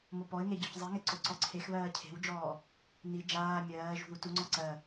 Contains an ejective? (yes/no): no